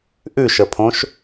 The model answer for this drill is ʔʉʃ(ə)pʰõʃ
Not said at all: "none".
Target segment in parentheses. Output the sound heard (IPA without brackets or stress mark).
ə